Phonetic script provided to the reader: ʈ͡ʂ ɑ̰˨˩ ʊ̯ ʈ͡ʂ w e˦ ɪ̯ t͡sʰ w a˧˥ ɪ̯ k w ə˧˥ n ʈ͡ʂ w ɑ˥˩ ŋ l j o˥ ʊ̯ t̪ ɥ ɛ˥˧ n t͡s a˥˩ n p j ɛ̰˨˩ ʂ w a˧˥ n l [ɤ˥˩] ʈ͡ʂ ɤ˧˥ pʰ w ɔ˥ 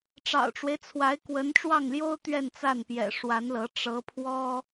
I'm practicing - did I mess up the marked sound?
yes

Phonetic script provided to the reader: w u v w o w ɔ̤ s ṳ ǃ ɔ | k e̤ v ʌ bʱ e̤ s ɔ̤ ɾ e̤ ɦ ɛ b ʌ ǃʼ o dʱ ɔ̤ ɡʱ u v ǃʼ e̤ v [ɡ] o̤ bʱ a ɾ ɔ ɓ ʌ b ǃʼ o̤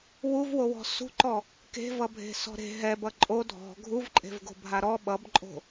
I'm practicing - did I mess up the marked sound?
no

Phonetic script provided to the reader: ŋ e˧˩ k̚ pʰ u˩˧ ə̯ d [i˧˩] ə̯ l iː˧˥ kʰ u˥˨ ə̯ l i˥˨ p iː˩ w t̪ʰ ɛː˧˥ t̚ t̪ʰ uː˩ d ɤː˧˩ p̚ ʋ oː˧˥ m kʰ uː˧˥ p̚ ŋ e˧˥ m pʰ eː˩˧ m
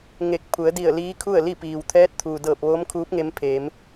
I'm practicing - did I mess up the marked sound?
no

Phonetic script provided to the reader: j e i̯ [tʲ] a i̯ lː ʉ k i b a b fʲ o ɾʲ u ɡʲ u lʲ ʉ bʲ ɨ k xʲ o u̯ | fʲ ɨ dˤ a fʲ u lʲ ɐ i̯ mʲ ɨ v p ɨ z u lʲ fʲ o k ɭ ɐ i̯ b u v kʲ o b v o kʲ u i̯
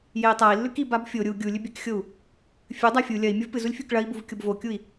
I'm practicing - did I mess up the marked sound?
yes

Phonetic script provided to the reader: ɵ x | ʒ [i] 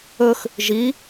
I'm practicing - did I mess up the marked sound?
no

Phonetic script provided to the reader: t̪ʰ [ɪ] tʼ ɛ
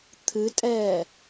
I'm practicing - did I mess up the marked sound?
yes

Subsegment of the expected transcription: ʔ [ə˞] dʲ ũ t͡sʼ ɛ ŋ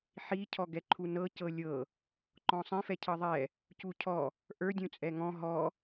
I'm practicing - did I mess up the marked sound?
no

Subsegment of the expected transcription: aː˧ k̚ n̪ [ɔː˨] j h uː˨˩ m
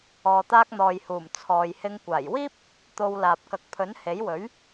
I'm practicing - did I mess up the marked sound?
no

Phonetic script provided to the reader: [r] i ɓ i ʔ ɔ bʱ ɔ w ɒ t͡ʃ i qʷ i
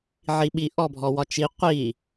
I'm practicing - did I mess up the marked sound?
yes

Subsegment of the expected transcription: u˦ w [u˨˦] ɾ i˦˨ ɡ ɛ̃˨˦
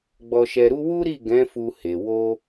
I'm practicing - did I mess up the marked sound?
yes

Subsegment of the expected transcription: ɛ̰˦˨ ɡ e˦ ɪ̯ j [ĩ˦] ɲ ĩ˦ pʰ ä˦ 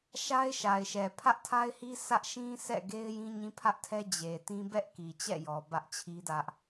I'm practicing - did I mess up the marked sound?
no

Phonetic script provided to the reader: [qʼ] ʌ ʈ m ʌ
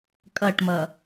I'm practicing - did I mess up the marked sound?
yes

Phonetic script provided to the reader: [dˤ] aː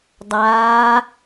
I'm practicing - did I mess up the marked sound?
no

